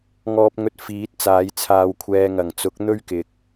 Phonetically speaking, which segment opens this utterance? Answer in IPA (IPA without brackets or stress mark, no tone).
ŋ